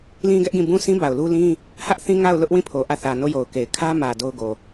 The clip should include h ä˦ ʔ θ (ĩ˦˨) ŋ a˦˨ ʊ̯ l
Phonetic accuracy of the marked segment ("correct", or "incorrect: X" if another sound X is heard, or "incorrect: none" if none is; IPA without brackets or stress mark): incorrect: ĩ˦